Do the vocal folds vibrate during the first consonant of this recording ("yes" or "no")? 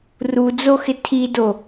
yes